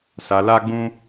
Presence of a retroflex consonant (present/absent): absent